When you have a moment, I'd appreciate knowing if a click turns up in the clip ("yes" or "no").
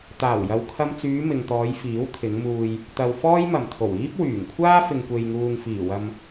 no